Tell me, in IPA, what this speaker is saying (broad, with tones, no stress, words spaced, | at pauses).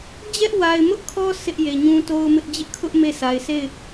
d͡ʑɛ˦ʔwa˨ɪ̯mʊ˦ʔkʰɔ˦ sɪ˦ʔje˨ɲũ˦ to˦ʊ̯mɪ˦ʔ d͡ʑɪ˦ʔkʰʊ˦ʔ me˦˨sʰa˨ɪ̯ se˦˨ɪ̯